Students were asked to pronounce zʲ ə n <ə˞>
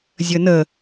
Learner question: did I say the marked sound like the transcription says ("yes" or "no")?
no